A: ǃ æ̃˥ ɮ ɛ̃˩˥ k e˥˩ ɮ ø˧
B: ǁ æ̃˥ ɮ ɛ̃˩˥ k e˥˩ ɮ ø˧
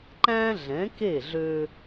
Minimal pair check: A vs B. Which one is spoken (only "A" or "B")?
A